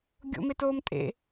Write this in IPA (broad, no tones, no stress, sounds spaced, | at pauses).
ɡʲ o̰ m e t oː m tʼ ḛ